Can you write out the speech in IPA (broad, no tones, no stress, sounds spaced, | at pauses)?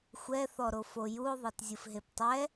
xʷ ɛ θ ɔ ɾ o f o j u o̯ ðˤ ɤ t zʲ ɯ f ɦ e p tˤ ɛ